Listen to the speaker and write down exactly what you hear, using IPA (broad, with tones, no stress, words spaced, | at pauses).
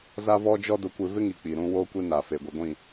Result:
za˦vɔ˦d͡ʒɔ˦ dʊ˦kʷɪ˦ vɪ˦ŋi˨ k͡pi˨ɾũ˦ woː˦kʷi˦na˨fe˨ ɡʷi˨ɡʷĩ˦˨